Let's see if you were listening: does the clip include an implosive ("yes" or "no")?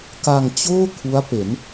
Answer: no